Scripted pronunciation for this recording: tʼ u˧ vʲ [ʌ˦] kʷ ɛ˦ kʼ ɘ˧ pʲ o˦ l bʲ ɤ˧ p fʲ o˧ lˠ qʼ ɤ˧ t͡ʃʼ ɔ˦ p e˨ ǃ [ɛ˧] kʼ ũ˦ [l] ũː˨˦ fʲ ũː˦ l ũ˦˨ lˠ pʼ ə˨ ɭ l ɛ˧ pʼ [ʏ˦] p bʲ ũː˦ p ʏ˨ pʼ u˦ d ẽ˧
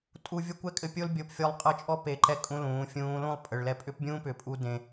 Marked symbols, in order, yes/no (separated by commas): yes, yes, yes, yes